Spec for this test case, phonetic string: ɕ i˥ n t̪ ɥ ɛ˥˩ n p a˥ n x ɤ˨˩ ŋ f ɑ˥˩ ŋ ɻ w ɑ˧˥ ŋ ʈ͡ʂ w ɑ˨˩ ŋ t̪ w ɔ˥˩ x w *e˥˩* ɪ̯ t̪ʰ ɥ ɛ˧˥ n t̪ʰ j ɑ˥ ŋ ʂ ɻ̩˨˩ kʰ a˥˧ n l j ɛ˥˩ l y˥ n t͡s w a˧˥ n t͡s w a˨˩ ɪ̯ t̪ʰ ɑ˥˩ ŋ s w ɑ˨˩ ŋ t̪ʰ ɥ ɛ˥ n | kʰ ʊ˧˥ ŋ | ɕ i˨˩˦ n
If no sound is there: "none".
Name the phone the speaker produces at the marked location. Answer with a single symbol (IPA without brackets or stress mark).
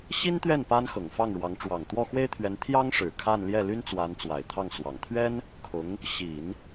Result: e˥